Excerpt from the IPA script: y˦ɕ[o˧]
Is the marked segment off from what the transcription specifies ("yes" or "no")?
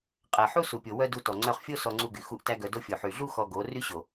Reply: yes